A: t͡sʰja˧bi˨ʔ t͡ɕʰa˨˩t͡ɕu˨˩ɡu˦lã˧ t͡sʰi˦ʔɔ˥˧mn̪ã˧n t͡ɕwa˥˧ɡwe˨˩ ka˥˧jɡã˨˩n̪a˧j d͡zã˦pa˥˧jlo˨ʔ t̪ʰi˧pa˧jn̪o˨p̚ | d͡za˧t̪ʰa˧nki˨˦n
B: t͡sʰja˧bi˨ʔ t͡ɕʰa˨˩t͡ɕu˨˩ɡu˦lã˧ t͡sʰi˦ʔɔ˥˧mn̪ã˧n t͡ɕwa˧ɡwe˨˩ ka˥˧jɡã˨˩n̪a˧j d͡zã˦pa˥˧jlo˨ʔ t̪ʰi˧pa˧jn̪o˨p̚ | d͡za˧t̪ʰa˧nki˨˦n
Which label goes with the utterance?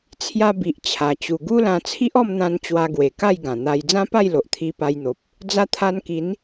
B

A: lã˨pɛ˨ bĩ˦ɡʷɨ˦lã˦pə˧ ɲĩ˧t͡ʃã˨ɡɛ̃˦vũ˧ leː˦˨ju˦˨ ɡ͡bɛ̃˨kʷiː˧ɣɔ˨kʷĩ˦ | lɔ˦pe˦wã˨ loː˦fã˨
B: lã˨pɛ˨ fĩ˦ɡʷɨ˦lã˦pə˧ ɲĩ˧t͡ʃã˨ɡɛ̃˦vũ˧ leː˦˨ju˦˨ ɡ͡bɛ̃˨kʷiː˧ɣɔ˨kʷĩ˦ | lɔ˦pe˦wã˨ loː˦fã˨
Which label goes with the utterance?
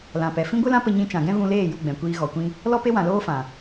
B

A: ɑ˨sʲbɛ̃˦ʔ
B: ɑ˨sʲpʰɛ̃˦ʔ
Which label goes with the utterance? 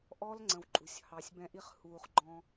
A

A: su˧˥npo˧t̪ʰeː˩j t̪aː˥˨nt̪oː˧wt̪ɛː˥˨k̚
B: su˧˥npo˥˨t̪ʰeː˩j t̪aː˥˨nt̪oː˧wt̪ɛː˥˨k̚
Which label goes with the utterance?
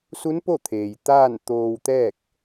B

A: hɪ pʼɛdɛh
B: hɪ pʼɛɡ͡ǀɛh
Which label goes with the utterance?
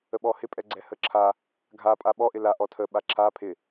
B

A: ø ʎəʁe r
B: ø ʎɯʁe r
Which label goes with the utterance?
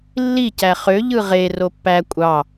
B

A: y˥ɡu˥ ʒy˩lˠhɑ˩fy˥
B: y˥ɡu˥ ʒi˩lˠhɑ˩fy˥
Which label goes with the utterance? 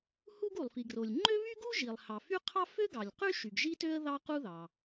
B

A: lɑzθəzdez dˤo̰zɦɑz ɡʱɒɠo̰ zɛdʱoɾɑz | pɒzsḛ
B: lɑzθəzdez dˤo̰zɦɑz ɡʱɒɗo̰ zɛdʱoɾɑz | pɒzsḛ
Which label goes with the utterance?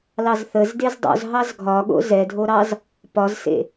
A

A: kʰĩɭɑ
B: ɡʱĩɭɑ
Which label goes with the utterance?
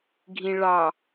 B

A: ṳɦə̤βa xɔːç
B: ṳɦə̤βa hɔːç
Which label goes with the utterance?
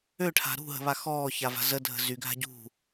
A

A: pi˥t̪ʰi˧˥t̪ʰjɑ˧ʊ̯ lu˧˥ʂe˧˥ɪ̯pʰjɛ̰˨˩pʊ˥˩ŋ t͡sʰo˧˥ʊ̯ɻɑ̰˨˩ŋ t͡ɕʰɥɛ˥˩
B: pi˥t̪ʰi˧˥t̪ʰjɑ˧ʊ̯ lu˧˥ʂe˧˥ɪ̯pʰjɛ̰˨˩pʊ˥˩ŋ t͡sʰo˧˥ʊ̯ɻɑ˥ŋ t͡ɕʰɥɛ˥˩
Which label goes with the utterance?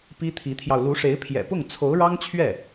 B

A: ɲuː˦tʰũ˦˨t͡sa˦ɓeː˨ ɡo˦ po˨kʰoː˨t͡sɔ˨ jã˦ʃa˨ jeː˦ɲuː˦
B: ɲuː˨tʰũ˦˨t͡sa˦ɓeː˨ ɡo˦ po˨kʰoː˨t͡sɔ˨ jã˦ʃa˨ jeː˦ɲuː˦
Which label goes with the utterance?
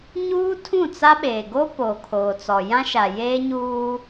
A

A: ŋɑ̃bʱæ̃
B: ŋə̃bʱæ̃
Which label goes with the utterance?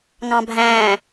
A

